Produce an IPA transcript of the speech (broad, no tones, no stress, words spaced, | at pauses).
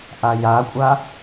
ʔajakʷʼa